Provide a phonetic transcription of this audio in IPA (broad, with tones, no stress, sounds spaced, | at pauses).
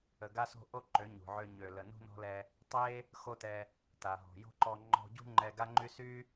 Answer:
ə˨ ɡ a˦ s o̤˦ ʔ o˦ ǃ ø˨˦ ɲ ṳ˨ ʕ ø˧ ɲ ø˨ l ə˨ n ṳ˦ n ɔ̤˦ l ɛ˧ | tˤ e˦ | x o˦ t ɛ˧ | t a˨ ɦ ɔ̤˨ j o̤˦ ǃ ɔ˧ ŋ͡ǃ ɔ̤˧ ɟ ṳ˦ ŋ͡ǃ ɛ˧ ɡ a˦ ŋ͡ǃ y˦ s y˦